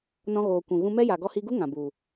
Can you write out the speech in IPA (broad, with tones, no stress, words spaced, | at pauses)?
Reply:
nɔ̃˧ɣoː˨ kʷũ˨ ɣũ˧mɛ˦ja˨ ɡɔ˧hi˧ɡu˦ ŋã˨bu˨